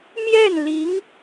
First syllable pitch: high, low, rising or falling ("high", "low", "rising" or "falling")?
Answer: falling